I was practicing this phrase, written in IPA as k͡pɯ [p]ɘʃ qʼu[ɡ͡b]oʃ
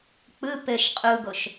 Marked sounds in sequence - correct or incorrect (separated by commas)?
correct, incorrect